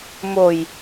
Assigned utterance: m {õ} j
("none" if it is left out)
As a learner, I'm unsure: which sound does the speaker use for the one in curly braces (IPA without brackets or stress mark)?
o